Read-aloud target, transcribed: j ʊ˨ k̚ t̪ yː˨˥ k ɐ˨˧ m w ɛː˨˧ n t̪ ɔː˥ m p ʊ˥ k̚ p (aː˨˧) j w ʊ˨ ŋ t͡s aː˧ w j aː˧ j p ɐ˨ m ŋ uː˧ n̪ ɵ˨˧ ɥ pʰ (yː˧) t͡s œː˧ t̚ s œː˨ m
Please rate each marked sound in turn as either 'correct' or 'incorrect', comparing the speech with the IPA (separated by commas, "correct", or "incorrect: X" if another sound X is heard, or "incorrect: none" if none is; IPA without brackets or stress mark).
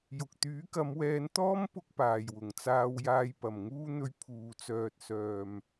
incorrect: aː˨, incorrect: uː˧